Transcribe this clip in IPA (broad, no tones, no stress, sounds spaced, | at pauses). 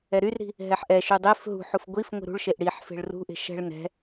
ɛ ɾ y r ɾ i̤ | ɦ ɛ ħ ʔ ɛ ʃ y dˤ e f ɦ ṳ ħ u f ɡʷ i f ŋʷ i̤ ɾ ṳ ɭ ʃ e ʔ ɽ i ħ f e̤ ɭ r ṳ ʔ e̤ ʃ ɛ̤ ɭ n ɛ̤